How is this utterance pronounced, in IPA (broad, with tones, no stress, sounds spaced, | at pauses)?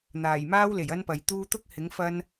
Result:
n̪ aː˨˩ j m aː˥ w l e˨˩ j ɐ˥ n p ɐ˨ j t̪ uː˥ t̪ ʊ˥ k̚ h ɪ˨˥ ŋ f ɐ˥ n